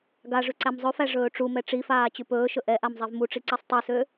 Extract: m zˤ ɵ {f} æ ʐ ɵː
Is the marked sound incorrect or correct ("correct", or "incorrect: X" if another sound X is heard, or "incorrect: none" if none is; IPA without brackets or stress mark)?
correct